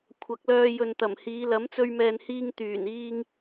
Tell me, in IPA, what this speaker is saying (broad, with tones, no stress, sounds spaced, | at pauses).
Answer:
kʷʰ ɐ˨˥ k̚ l œː˧ j ɵ˨ n t̪ ɐ˨˩ m h iː˨˧ l ɐ˨˥ m t͡s ɵ˧ ɥ m ɛː˨ n h iː˧ ŋ t̪ yː˨˩ n iː˥ ŋ